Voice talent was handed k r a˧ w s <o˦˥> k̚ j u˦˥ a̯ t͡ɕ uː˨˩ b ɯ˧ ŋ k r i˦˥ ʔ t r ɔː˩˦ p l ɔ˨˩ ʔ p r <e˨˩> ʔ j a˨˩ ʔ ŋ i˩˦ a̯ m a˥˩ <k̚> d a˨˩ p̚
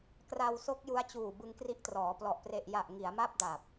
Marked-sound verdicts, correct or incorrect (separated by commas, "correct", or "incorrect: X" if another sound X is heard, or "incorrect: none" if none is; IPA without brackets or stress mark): correct, correct, incorrect: p̚